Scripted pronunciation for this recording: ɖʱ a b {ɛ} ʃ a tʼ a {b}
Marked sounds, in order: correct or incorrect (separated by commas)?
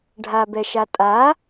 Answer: correct, incorrect